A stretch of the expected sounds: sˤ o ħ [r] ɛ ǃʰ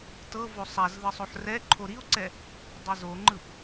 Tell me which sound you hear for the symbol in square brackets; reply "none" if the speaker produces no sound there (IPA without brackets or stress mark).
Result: r